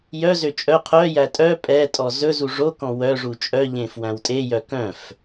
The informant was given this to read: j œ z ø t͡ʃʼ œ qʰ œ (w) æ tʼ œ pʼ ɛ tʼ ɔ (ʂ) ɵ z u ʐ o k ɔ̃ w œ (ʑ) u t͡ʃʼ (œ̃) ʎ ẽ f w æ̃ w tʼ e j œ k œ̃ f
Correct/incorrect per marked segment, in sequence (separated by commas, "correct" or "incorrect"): incorrect, incorrect, incorrect, incorrect